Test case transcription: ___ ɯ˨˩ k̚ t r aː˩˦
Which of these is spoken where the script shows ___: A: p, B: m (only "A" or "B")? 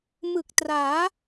B